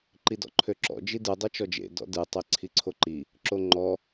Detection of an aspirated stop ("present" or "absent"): present